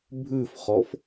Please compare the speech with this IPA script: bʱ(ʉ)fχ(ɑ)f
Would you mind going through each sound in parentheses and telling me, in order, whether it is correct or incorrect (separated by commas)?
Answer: correct, incorrect